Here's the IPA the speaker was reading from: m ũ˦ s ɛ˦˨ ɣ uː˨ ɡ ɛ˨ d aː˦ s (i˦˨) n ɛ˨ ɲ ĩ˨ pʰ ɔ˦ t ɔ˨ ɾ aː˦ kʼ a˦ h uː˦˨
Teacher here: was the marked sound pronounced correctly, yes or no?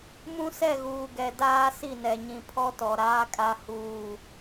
yes